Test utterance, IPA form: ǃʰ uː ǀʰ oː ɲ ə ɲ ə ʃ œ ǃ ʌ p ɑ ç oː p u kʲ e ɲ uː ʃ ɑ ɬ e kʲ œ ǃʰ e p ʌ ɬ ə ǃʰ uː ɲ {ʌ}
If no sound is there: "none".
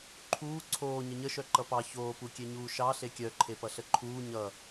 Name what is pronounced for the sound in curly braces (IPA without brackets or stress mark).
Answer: ʌ